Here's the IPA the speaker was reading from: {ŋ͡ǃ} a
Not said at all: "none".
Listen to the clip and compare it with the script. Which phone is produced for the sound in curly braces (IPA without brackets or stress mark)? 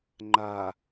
ŋ͡ǃ